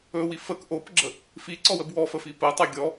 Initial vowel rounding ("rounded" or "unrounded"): rounded